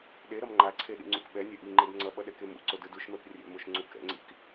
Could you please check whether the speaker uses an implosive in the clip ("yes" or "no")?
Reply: yes